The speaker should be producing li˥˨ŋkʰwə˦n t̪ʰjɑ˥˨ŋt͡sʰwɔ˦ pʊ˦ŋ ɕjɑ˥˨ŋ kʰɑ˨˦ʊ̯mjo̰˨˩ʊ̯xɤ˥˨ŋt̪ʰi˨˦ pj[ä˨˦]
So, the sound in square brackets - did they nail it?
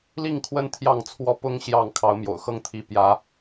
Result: yes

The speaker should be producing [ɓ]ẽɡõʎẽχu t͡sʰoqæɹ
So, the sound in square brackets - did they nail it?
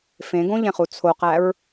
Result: no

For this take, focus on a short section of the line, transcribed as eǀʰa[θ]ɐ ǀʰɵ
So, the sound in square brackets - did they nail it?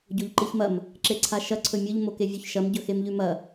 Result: no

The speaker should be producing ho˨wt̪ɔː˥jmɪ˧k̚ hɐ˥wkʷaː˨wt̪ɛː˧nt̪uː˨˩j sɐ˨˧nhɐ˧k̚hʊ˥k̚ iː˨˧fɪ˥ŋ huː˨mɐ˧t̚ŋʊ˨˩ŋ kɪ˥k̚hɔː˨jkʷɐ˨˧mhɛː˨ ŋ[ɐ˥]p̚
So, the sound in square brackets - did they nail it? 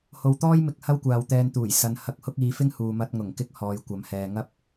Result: yes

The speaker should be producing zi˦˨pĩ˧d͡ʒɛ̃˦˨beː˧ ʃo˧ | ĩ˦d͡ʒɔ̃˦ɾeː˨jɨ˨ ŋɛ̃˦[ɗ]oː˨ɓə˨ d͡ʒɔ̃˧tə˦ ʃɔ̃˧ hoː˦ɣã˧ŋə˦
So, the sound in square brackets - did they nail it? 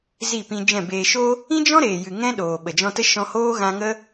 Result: yes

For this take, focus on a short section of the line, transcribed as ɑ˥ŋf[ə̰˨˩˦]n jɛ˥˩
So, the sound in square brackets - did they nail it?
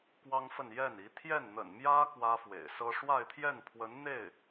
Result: no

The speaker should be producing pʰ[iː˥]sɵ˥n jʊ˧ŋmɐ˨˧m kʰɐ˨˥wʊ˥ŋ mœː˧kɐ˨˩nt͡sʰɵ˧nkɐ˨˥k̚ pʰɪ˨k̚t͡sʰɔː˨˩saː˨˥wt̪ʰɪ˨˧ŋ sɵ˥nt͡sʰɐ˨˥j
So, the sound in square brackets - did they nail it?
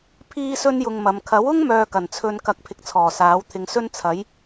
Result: yes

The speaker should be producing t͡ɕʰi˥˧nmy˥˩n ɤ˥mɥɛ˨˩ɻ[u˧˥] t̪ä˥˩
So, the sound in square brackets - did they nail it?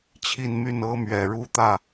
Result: no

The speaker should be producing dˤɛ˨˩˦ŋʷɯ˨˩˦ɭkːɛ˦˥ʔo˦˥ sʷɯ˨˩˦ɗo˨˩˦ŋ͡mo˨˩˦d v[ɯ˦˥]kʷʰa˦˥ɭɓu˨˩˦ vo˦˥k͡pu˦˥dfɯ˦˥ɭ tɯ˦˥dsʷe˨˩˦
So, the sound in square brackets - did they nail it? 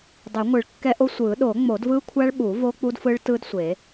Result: yes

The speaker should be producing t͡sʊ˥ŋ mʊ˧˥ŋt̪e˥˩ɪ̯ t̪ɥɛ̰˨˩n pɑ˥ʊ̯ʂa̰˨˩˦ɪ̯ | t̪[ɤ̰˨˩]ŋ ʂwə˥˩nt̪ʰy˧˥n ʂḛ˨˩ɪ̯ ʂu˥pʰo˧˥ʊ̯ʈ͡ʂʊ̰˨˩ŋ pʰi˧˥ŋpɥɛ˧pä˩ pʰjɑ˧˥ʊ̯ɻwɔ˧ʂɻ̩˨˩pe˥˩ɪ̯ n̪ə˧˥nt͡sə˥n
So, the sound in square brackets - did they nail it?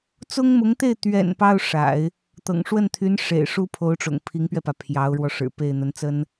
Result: yes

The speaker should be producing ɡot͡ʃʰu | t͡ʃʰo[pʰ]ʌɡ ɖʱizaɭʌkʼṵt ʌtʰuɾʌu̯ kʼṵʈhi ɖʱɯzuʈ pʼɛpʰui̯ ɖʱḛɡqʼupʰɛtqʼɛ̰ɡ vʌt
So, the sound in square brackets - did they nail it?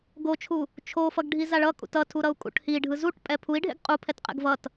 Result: no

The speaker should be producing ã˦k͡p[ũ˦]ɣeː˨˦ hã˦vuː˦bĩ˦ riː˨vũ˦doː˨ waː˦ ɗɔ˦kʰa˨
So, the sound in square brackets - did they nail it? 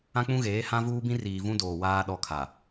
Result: yes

